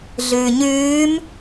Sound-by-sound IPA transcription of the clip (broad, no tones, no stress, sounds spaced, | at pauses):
ɮ ʉː ɲ ʉː m